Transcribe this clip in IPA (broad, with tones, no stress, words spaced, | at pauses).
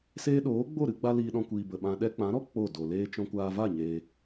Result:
seː˦ ɗoː˨˦ɡ͡bo˦˨ɾɨ˧ɡ͡ba˧ liː˧ɗɔ̃˧kʷiː˨bə˨ ɓã˧ ɗɛ˧k͡pã˨˦ɾɔ˦ k͡po˦˨do˨leː˦ t͡ʃɔ̃˧kʷaː˧va˦˨ ɲeː˧